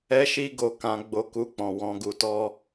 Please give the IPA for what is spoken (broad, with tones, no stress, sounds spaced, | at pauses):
ɛ˦ ʃ i˦ ɡ o˧ k ã˧ ɡ͡b o˧ k u˧ k͡p ɔ̃˨ w ɔ̃˧ ɡ u˧ t ɔ˦